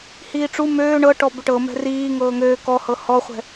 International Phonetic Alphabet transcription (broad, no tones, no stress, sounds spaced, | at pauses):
h iː ʈ͡ʂ u m øː ɳ ɤ ʈ ɔ b ʏ ʈ ɤ m ɛ̤ r iː ŋ ɤː ŋ øː k ɔ h ɤ h ɔ χʷ ɛ̤